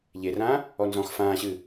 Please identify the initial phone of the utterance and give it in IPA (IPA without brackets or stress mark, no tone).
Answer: ʎ